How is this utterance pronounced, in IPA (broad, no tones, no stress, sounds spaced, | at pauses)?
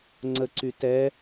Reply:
ŋ͡ǀ ə ǀ y t ɛ